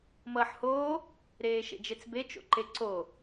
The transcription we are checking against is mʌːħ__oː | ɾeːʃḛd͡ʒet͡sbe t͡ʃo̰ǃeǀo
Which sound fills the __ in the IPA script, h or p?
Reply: h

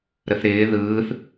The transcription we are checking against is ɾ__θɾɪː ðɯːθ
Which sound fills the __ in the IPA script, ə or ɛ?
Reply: ə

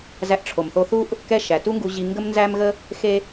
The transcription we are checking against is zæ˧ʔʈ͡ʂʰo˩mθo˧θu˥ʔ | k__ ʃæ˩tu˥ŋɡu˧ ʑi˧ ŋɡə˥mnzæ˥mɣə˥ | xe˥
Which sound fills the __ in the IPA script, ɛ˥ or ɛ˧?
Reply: ɛ˥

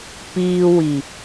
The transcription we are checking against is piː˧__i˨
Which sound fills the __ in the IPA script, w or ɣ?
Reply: w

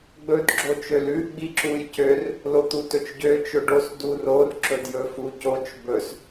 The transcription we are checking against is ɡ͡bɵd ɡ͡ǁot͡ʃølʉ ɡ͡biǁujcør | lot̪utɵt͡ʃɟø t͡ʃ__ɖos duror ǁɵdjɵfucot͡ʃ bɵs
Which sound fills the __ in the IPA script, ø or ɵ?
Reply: ɵ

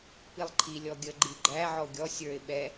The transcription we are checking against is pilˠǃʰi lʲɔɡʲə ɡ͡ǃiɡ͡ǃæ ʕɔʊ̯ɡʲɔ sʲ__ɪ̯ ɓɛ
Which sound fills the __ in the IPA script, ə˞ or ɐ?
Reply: ə˞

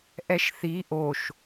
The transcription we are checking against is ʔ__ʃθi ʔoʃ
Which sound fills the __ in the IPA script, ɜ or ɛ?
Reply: ɛ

